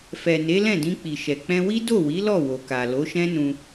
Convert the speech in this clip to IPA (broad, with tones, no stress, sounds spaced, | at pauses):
f ɛ˨ n e˨˦ l ɛ̃˦˨ d ĩ˧ k͡p i˨ ʃ ɛ˨ k͡p ɛ̃˧ w i˦ d o˦˨ w i˨˦ l ɔ˦˨ w o˨ k a˨ l o˨˦ ʃ ɛ̃˦ n ũ˧